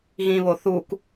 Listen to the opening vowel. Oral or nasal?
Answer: nasal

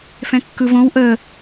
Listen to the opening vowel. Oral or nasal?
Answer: nasal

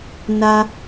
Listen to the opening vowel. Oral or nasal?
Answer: oral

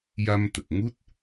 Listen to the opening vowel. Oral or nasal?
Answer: oral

